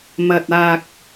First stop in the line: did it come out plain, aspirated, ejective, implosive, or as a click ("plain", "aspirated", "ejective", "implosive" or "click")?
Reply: plain